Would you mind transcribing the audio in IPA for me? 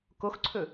k o x ǀʰ ɵ

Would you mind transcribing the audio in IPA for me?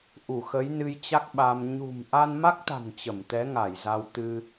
ʔ u˧˩ x ə˨˦ j n ɨ˧ j t͡ɕ a˦˥ k̚ ɓ a˧ m ɲ ṳ˨˩ m ʔ a˧ n m a˦˥ k̚ t̪ a̤˨˩ n t͡ɕ ə˧˩ m t̪ ɛ˨˦ ŋ a˧˩ j z a˧ w t̪ ɨ˧

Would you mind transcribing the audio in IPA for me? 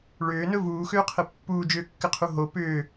ɭ ʏː n ɵ v uː x ʏː qʰ ɘ pː uː d͡ʒ ʏː kː ɘ qʰ u ɦ o p ʏː

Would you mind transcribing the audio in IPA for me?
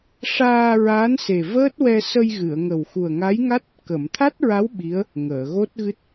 ʂ aː˧ ɹ aː˧˥ n s e˨˩ v əː˦˥ t̚ w ɛ˧ s ə˧ j ɣ ɨ˨˩˨ ə̯ ŋ ə˨˩ w x u˨˩ ə̯ ŋ a˧˥ j ŋ a˦˥ t̚ | k ə˨˩˨ m t̪ʰ a˦˥ t̚ ɹ a˧˥ w ɓ i˧˥ ə̯ | ŋ əː˨˩˨ ɣ o˦˥ t̚ ɣ ɨ˦˥ t̚

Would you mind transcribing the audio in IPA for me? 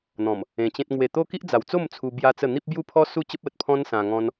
n̪ ɔ̃˨˩ m | ẽ˧ t͡ɕ ẽ˦ t̚ ŋ w e˨˩ t̪ o˦ k i˦ ʔ d͡z a˨˩ w t͡s o˥˧ m t͡sʰ u˧ b j a˦ t͡s ə˥˧ n̪ i˦ p̚ b j u˥˧ pʰ ɔ˦ s u˥˧ t͡ɕ ə˦ p̚ ə˨ t̚ pʰ ɔ̃˦ n s ã˧ ŋ ɔ̃˦ n

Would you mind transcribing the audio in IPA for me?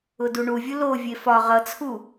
ʊ d u ɳ u vʲ ʊ l o vʲ e f ɒ ʁ ʌ t͡sʰ u

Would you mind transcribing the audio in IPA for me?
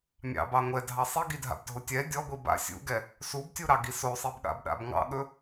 mʲ ɑ̰ b ɑ ŋʷ ɛ dʱ ɑ sˤ i ɡ i dʱ a̰ b dʱ o tʲ ɛ dʲ ɔ ɡʷ i b a̰ sʲ ṵ ɡ ɛ | s u b tʲ u ɾ ɑ ɡ i s o sˤ i b ɠ a̰ b ɗ a̰ b ŋ ɑ̰ ɠ ɵ

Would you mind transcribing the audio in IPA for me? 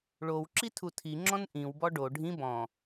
ɭ o w ǁ i tʰ u tʰ i ŋ͡ǁ ɔ̃ n ʔ ĩ w b ɔ ɖ o ɖʱ ĩ b ɔ̃

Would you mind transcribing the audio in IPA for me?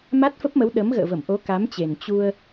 m a˦˥ t̚ f ə˦˥ p̚ m ə˨˦ w ɗ ə˨˦ m ɣ ə̰ː˧˨ v ə˧˩ m ʔ o˨˦ k a˨˦ m t͡ɕ e˨˩ n t͡ɕ u˧ ə̯

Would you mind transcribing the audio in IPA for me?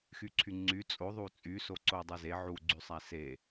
x y ǀʰ y ŋ͡ǀ y t͡sʼ o ðˤ u t͡sʼ y s o ǀ o dˤ e z e ʕ u ɡ͡ǀ y sˤ æ s e

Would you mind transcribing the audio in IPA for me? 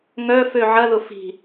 ŋ œ f ø ʕ ɐ ð ʊ f i̤

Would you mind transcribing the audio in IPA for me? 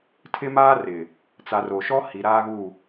tʰ ɪ˦ m aː˦ r ɪ˨ | t͡s a˨ r o˨ ʃ ɔ˦ h i˨ ɾ aː˦ ɣ u˦˨

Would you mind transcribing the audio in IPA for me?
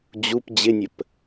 d͡ʑ u p d͡ʑ ɪ nʲ ə p

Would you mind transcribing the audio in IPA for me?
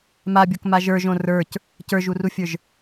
m a bʲ o k m a ʒ ə˞ ʒ õ r ə˞ c | c ə˞ ʒ u r u fʲ ə˞ ʒ

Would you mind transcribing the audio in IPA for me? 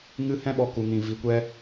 ŋ ɨ˦ h ɛ̃˦ ɓ ɔ˧ k u˧ ŋ ĩ˧ v i˧ kʷ ɛ˦

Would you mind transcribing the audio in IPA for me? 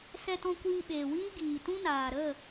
s ɛ˧ t ɔ̃˧ kʷ iː˧ ɓ eː˨ w iː˦ ɡ iː˨ t ũ˦ n aː˨ ɾ ə˦˨

